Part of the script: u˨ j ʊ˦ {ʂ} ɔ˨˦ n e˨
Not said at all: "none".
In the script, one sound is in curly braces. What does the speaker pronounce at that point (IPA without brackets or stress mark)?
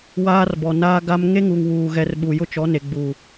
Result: t͡ʃ